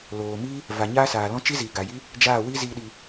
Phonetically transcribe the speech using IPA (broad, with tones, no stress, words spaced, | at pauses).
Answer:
loː˨ mi˦ | va˨ɲaː˦saː˨lɔ̃˦ t͡ʃi˦ziː˨ɡa˨ji˦ | d͡ʒaː˦˨wi˦ zi˦ɗi˧